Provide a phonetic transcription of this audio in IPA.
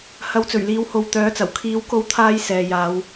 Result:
h ɐ˨˥ w t͡s ɵ˨˩ ɥ l iː˨˧ w h o˨ w t̪ œː˨˥ t͡s ɐ˨˩ w kʰ iː˨˧ w k o˧ w t̪ʰ aː˧ j s ɛː˨ j aː˨˧ w

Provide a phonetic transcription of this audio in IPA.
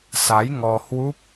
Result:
s a˨˦ j ŋ ɔ˧ h w u˦˥ p̚

